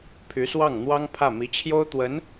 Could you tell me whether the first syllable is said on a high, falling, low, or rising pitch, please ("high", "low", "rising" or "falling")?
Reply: rising